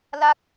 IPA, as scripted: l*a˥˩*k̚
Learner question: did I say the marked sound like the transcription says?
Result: no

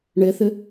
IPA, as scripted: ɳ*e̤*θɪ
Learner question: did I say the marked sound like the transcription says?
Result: no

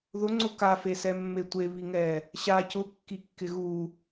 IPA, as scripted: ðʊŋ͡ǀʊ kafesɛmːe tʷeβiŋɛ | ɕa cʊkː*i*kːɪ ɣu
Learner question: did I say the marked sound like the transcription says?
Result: yes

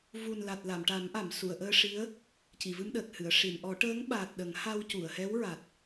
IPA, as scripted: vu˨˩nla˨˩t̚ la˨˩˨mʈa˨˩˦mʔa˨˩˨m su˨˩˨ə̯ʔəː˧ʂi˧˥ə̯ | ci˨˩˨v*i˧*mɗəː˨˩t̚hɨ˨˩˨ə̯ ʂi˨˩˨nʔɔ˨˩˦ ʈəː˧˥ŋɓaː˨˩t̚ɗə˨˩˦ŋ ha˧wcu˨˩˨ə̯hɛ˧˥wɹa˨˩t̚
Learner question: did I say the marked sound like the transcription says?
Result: no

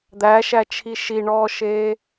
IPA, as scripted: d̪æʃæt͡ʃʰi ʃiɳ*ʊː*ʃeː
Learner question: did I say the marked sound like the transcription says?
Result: no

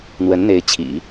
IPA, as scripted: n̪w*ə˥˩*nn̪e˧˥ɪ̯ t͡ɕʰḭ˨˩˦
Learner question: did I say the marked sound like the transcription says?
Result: no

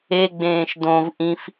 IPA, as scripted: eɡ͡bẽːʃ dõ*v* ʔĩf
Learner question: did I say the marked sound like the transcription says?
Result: yes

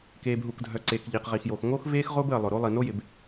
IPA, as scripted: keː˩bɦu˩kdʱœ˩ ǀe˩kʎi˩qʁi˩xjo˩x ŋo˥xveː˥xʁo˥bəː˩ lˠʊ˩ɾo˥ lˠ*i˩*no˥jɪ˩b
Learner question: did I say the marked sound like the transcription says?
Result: yes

